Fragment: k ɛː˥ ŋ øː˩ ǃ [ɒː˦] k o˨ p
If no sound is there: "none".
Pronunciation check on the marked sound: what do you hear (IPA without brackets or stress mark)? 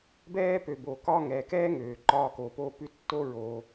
ɒː˦